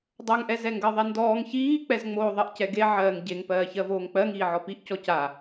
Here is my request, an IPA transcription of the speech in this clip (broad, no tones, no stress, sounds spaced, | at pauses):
dˤ ɜ ŋ ʔ ɛ z ɛ ŋ ɡ ɜ ðˤ e n d ɔː ŋ ç iː k͡p ɛ z ŋ͡m oː ðˤ ɜ ʔ c ɛ ɡ e ʕ ɜː ŋ ɟ e ŋ p ɜː ç ɜ v oː ŋ k͡p ɜ ŋ iː ʕ ɔ p i ʔ c ɔ c a